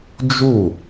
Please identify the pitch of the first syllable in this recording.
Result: falling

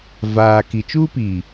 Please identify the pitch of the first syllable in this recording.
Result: low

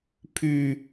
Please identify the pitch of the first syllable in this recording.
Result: low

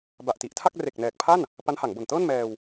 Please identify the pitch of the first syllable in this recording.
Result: low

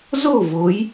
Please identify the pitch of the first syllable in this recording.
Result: falling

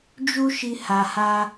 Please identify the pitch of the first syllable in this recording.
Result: high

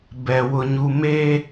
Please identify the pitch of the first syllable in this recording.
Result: high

